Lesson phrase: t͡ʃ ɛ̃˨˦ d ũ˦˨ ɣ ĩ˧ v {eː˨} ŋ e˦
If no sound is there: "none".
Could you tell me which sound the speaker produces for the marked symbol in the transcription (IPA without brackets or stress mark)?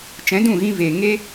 eː˨